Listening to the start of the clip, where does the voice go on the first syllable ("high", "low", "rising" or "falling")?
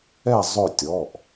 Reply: falling